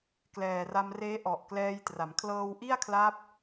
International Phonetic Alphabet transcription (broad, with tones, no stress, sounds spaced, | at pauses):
k l ɛː˨˩ r a˧ m r eː˦˥ ʔ ɔ˨˩ ʔ k l ɛː˧ j t r a˩˦ m kʰ l ɤː˧ w ʔ i˥˩ a̯ kʰ l a˦˥ p̚